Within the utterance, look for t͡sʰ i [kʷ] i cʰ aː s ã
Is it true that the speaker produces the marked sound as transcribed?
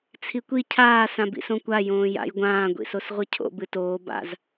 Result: yes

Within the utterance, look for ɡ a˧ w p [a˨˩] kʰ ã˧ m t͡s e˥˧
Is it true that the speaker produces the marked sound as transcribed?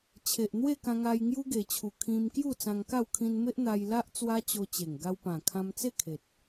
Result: no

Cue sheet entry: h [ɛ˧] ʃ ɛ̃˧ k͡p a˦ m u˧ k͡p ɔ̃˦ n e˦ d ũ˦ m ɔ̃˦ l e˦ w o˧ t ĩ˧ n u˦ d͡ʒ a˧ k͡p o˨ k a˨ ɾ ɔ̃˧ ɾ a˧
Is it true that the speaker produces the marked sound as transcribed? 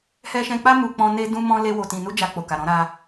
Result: yes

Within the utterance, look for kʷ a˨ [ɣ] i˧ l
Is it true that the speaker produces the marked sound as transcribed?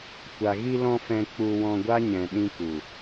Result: yes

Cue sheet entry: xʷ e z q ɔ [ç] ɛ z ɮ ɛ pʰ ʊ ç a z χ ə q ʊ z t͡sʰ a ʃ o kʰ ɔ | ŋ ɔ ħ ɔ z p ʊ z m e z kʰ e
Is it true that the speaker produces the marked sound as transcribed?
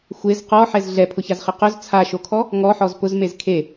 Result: no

